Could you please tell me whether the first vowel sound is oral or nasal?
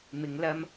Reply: oral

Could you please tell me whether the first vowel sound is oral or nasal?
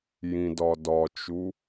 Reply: nasal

